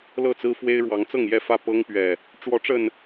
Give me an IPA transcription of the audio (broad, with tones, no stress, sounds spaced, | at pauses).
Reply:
l ɤ˥˨ t͡s ɹ̩˦ f w e˦ ɪ̯ ɻ w ɑ˨˦ ŋ t͡s ɤ˥˨ ŋ j ɛ˥˨ f ä˥˨ p ɤ˦ ŋ p ɥ ɛ˨˩ | ʈ͡ʂ w ɔ˨˦ ʈ͡ʂ ə˨˩ n